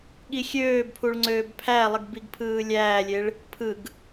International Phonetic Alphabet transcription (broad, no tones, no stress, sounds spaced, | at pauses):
ɠ i xʲ øː b pʰ u ɭ ŋ͡ǀ øː b pʰ æ lˠ ɯ ɡ b i ɡ pʰ ɯː lʲ æː lʲ e ɭ | pʰ ɯ ɡ